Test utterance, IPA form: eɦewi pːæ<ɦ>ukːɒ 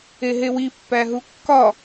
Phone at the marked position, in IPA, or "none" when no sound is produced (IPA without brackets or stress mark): ɦ